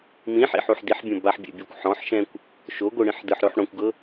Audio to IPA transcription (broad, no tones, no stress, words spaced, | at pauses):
mĩħḭħuħ diħbʲõ baħbʲɛ̰bʲɔkʷ ħɔ̃ħʃɛ̃kʷ | ʃoɡʷɯɽĩħ dɯħɾoħ ɽõkʷɡɤ